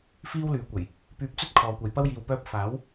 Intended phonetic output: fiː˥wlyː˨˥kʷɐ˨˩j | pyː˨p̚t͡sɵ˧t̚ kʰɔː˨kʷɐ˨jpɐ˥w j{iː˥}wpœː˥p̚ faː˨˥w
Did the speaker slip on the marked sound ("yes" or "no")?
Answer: yes